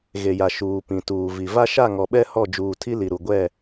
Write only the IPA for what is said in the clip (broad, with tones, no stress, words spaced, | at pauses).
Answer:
ɣe˨ja˨ ʃuː˨pĩ˨tuː˨ vi˨ va˦ʃa˦˨ŋɔ˨ɓɛ˦ hɔ˦˨d͡ʒuː˨tʰi˦ li˨ɾu˨ɡʷɛ˦˨